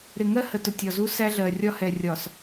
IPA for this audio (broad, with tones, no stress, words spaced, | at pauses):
ɾɪ˨ŋɜ˦hə˨tʊ˨ tʲɒ˨zu˦ sæ˦ɮɜ˨ rʲɒ˦hɛ˨rʲɒ˨s